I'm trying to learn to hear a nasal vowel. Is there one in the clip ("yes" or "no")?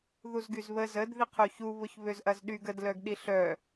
no